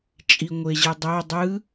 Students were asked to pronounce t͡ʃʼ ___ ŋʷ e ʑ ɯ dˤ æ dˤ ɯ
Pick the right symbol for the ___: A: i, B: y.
A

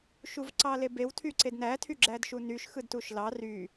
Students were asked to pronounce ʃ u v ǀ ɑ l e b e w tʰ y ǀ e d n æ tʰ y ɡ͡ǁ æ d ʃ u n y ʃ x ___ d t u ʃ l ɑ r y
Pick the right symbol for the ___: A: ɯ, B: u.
A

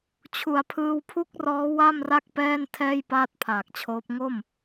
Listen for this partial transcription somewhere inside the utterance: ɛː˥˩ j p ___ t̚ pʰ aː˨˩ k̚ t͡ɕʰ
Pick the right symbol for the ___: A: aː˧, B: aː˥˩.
B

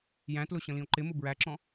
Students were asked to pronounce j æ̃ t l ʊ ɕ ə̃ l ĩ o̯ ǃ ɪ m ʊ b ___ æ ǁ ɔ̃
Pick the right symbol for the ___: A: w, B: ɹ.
B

